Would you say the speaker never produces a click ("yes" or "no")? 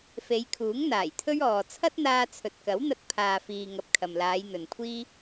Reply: yes